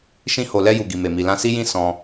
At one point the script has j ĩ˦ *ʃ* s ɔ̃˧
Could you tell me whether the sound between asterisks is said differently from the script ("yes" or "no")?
yes